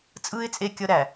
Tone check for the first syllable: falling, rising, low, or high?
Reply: high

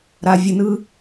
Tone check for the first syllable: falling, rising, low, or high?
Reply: low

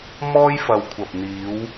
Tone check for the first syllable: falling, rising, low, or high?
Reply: high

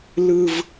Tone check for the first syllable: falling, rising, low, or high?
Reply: high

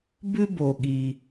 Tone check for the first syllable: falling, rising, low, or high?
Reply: high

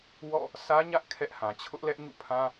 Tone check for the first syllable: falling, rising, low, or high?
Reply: falling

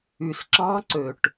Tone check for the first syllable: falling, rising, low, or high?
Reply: low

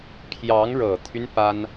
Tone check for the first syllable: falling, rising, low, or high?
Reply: rising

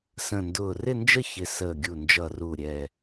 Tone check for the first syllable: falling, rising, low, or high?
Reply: low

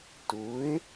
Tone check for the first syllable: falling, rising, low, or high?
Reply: rising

